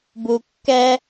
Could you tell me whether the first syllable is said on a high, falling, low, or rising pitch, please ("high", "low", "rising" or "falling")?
low